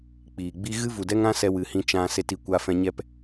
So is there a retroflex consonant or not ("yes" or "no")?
no